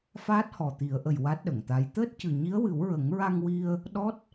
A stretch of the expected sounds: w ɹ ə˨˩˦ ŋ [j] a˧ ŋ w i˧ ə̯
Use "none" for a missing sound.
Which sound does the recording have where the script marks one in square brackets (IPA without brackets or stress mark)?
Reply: ɹ